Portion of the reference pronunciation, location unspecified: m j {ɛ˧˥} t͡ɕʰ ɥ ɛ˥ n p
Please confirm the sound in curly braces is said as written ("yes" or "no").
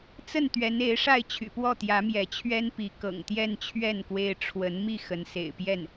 yes